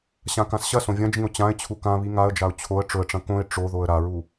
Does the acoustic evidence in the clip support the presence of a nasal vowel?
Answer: yes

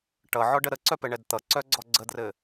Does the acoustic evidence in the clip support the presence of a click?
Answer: yes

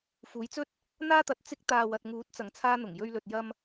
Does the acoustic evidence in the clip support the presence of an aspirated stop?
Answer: yes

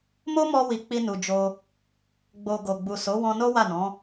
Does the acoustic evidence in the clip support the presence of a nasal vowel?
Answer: yes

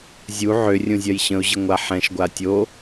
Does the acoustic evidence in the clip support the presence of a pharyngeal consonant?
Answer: yes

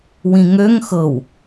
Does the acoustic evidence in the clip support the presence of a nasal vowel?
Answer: yes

